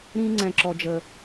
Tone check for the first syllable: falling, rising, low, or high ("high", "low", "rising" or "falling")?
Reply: high